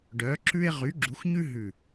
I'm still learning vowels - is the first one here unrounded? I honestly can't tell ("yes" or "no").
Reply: no